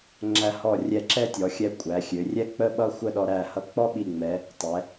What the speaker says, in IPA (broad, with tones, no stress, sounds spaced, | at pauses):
ŋ͡ǁ æ˧ h ɔ˧˩ rʲ ɛ˧˩ ǁ ɛ˥ tʲ ɔ˩˧ xʲ ɛ˧ kʷʼ æ˩˧ xʲ ø˩˧ rʲ ɛ˥ k͡p ə˥˧ ɓ ʌ˥ xʷ ə˥˧ ɗ ɔ˧ ɾ æ˧˩ h ʌ˧ k͡p ɔ˥ ɓ i˧˩ ŋ͡m ɛ˩˧ | tˤ ɛ˩˧